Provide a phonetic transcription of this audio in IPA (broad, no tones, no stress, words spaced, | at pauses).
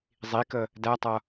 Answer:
zˤikə | dætˤʌ